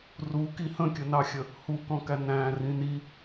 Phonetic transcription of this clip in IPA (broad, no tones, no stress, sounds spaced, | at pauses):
r u k i h ə̃ kʲ ə n ɑ xʲ ə | h u k ɔ̃ k æ n æ̃ r ĩ n i